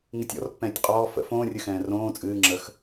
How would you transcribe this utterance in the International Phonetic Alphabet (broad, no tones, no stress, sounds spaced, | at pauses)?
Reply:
ŋ ɨ tʲ ɔ̰ r pː ɛ̃ː tʲ qʼ ɔː f ə̰ f õː rʲ ɨ x ɛ̃ː r õː t͡sʼ ɨː ŋ͡ǁ ə x